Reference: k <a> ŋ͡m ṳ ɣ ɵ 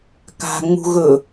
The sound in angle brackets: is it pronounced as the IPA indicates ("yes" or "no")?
no